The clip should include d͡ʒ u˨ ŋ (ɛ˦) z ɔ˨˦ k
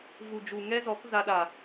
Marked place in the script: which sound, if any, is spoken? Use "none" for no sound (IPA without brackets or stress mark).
ɛ˦